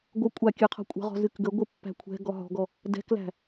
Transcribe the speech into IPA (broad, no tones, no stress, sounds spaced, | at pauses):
ɡʷ ə kʷʼ a kʲ ɨ qʰ ɔ̤ kʷʼ ə̤ ʁ ɔ̤ z ɨ k ɡ ə ɡʷ ɨ pː æ̤ kʷʰ ɛ̤ ɡ ɔ ɦ ɔ̤ ɡ ɔ | d ɛ̤ k l æ̤